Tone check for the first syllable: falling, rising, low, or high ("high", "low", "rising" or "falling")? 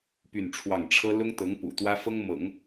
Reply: falling